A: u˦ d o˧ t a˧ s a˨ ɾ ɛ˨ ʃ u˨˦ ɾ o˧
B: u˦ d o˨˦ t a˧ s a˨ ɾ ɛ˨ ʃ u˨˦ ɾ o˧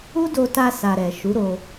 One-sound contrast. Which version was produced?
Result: A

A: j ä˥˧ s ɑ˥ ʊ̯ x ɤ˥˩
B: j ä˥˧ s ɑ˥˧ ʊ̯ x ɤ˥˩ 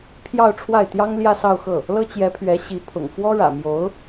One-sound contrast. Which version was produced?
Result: B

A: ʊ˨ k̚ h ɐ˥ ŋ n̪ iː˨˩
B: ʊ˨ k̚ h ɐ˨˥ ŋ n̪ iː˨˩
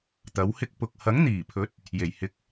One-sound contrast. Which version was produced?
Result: B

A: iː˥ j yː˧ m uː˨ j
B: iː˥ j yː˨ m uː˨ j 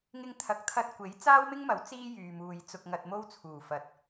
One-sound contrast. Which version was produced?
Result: B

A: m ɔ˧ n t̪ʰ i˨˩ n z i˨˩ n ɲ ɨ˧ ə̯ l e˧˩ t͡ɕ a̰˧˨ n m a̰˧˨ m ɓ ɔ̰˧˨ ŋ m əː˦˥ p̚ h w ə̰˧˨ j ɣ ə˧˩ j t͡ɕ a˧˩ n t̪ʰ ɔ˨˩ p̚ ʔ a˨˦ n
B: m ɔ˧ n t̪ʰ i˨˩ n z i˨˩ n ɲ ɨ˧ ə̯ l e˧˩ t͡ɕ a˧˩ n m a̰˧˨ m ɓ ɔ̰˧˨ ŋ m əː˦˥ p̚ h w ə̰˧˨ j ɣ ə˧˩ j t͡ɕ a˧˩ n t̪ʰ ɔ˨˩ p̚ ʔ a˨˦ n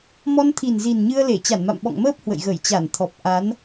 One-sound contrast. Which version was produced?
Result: B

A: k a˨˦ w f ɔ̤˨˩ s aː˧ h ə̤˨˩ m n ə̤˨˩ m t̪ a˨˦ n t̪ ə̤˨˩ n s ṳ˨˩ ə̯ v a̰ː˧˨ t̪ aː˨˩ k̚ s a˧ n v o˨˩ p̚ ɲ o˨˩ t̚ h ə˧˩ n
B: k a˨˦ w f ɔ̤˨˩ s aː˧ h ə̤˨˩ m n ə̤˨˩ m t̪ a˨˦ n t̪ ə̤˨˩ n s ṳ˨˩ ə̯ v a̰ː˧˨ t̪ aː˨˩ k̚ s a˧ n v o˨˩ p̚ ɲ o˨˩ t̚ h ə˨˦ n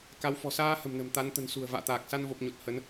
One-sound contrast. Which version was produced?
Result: B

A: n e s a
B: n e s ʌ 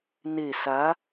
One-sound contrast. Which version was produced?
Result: A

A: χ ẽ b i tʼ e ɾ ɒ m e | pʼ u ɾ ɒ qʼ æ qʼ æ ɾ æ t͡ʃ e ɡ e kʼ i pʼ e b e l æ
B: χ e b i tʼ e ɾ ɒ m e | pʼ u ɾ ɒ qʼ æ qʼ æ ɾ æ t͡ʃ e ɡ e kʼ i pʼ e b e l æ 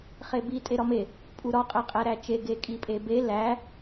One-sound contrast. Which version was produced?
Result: B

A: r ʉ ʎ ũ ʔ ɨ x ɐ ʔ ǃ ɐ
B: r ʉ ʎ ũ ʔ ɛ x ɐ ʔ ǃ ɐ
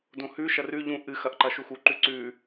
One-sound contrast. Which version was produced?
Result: A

